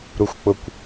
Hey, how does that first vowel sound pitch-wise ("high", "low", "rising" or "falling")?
low